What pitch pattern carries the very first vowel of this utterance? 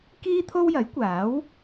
high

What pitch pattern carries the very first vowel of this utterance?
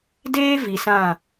high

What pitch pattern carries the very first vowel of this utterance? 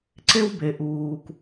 high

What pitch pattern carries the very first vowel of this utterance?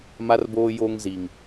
low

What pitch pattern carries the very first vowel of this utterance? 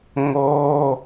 high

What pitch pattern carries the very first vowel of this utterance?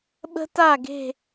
high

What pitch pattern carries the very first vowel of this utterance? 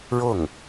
falling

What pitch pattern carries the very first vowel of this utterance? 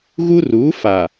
high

